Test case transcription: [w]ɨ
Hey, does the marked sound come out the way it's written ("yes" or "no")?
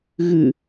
no